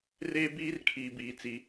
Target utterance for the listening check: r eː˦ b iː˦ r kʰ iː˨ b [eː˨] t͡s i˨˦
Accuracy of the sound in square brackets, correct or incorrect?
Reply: incorrect: iː˨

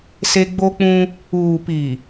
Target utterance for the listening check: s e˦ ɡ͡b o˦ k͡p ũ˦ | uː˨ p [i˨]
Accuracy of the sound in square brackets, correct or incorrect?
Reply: correct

